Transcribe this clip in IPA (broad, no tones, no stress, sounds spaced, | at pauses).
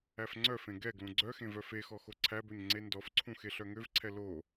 æ f ŋ͡ǀ œ f ẽ ɡ ɛ ɡ l ũ ɡ͡ǀ œ x ẽ v œ f e x ɔ x o ǀʰ æ b ø ɲ ŋ͡ǀ e n d ɔ f ǀʰ ũ x e ɬ œ ŋ ø v ǀʰ ɛ l o